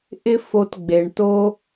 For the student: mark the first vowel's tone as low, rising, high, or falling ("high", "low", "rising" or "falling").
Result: high